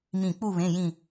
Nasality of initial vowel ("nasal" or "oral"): nasal